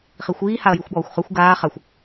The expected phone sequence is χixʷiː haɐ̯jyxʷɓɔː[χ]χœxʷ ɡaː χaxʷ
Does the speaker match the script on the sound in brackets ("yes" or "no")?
no